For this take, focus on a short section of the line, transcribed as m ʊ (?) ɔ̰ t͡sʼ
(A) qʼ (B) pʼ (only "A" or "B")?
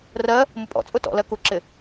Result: B